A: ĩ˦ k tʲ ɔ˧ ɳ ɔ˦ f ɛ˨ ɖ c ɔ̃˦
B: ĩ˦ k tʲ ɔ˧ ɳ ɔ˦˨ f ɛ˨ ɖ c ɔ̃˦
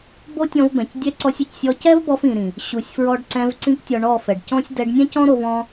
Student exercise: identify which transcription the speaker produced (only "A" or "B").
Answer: B